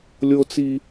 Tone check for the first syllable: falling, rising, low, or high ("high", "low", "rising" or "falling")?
high